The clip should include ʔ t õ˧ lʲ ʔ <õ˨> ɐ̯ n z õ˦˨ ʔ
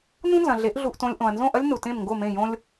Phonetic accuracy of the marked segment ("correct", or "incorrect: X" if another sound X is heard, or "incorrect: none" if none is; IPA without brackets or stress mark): correct